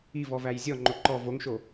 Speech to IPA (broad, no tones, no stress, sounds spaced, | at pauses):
i v ɔ v æ j zʲ ɔ ŋ͡ǃ o ǃ ɔ v o ŋ ʃ o